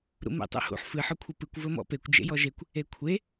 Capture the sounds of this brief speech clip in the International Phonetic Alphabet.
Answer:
ɾ ṵ m ḛ tˤ ṵ h ṵ ħ f ɨ ħ ɵ kʷʰ ɨ p ɨ kʷ v ɵ m ɔ̰ p e kʷ d͡ʒ ḛ j ɔ ʒ e kʷ | e kʷʰ e

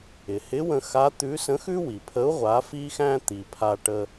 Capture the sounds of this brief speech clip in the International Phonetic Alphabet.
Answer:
ɪ˩ h ɪ˧˥ w ə̃˧ x a˧˥ t̪ ʉ˧˥ s ə̃˧˥ x ʉ˥ w i˩ pʰ ə˧˥ u̯ ʁʷ a˩˧ f i˧ x æ̃˧ t̪ i˩ pʰ a˧ ʈ ə˧

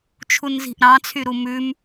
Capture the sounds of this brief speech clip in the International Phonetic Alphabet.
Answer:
t͡ʃʰ u n z i̤ ʔ ɾ ɑ̃ t͡sʰ y ɾ u m ʉ m

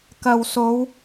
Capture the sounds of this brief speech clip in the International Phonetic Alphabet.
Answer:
k ɐ˨ w s o˨˧ w

